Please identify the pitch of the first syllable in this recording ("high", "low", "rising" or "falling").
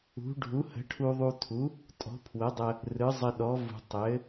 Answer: rising